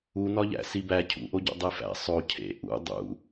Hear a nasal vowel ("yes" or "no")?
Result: no